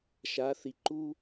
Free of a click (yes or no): no